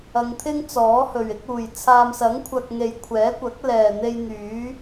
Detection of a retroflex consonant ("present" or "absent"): absent